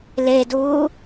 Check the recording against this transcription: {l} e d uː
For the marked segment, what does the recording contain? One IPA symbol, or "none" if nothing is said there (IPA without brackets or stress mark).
l